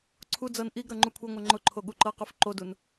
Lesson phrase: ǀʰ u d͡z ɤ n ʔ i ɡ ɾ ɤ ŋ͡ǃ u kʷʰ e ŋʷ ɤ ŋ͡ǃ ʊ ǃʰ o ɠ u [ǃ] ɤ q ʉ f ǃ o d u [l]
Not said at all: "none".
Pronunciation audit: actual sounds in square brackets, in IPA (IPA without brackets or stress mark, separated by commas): ǃ, n